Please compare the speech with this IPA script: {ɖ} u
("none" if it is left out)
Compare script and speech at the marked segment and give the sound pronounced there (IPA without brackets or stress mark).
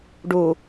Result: ɖ